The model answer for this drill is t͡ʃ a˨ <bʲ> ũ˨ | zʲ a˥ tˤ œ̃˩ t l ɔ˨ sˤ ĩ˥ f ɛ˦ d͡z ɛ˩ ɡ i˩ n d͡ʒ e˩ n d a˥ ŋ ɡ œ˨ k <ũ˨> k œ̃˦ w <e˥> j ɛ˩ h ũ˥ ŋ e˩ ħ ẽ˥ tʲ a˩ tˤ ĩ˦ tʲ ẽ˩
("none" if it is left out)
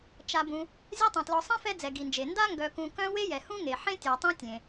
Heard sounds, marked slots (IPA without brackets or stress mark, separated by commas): b, ũ˨, e˥